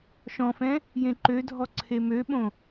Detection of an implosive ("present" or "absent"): present